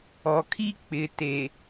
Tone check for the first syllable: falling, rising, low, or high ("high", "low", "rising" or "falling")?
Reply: low